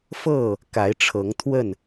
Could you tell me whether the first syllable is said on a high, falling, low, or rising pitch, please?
falling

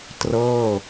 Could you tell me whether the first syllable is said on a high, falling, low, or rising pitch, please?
falling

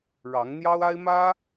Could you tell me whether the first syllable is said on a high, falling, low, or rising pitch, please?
rising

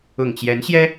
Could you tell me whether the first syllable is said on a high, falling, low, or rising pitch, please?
low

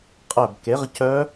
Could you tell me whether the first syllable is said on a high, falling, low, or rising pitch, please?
falling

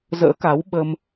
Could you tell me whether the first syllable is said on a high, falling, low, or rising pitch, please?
rising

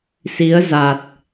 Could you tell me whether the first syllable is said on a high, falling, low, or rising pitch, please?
rising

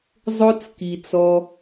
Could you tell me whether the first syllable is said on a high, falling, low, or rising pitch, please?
high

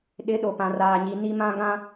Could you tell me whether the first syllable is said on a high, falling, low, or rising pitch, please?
rising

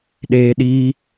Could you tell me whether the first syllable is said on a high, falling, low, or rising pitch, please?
high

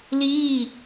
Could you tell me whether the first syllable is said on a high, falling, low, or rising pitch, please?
falling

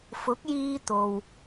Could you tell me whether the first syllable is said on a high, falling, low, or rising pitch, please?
rising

